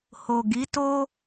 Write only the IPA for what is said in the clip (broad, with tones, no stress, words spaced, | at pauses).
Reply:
ho˨ɡi˨˦ to˦